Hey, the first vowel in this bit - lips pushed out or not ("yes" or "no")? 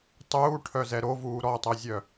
yes